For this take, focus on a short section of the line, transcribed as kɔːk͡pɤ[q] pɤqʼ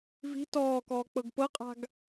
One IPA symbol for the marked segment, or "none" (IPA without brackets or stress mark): ɡ